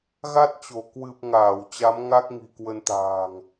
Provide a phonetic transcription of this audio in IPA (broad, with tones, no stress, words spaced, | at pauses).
ɣa˦˥t̚t͡ɕo˧˩ kwɨ˨˩p̚ ŋaː˧˩w t͡ɕa˨˦m ŋa˦˥k̚ŋi̤˨˩kwə˧nt̪a̤ː˨˩ŋ